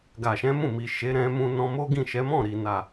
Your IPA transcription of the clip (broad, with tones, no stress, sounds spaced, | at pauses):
ɡ a˨ ʃ ɛ̃˨˦ m ũ˦˨ m i˨ ʃ e˨˦ ɾ ɛ̃˧ m ũ˧ n ɔ̃˧ m o˦ ɡ ĩ˦˨ ʃ ɛ˨˦ m ɔ̃˦˨ ɾ i˨ n a˨